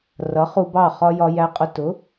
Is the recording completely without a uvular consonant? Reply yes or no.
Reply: no